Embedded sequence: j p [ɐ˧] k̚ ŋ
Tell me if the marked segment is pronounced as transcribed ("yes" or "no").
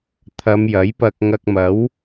yes